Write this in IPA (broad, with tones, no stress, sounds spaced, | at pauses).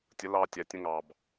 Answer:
tʲ ə˨˦ l ɑ˧ tʲ æ˨ tʲ ə̃˧ ŋ ɑ˨ b